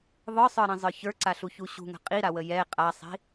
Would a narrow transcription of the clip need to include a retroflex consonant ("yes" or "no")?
no